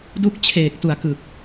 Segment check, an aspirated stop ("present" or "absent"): present